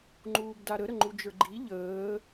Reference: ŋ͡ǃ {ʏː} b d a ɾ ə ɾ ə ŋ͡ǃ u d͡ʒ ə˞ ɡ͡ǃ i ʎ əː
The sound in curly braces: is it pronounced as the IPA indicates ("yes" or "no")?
no